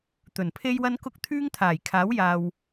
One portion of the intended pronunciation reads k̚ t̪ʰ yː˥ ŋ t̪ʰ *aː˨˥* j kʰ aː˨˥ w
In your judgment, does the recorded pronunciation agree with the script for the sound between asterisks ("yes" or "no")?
no